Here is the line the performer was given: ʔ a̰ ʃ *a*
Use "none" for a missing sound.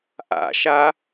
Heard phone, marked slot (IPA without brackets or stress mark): a